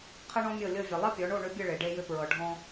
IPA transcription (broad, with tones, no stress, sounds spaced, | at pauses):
qʰ ɘ˥ ɳ ɔ̃˥ mʲ ɤ˥˩ lʲ ɤ˥˩ vʲ ɘ˩ lˠ ɘ˥ pʲ ɔ˩˥ ɳ o˥˩ ɳ ʏ˥ bʲ ɘ˥˩ ɭ e˩ ɖ e˧ j ʏ˧ p ɹ ɤ˩ ɖʱ ɔ̃˧